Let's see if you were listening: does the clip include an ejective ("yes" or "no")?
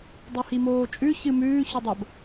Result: yes